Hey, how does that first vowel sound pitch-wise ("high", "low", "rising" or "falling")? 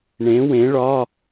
rising